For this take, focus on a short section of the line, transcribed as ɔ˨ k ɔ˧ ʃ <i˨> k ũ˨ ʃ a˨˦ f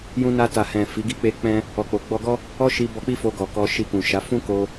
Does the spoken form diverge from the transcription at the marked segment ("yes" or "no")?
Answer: yes